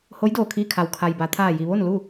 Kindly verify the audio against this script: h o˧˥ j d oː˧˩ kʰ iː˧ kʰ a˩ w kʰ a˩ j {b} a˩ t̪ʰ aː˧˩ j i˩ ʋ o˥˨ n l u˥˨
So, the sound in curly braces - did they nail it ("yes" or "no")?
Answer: yes